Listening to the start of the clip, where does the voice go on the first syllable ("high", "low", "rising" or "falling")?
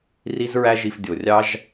high